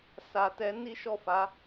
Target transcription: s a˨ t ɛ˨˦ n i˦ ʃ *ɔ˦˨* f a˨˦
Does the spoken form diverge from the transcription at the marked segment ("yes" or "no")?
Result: no